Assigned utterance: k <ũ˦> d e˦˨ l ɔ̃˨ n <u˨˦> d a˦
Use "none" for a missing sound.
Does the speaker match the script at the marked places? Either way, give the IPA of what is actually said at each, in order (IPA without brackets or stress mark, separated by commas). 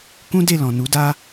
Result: ũ˦, u˨˦